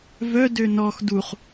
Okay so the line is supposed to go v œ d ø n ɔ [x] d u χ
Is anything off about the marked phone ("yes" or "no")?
no